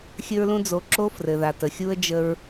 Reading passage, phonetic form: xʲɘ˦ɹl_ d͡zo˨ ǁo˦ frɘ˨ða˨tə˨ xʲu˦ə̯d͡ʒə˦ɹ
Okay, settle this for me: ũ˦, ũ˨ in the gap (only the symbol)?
ũ˦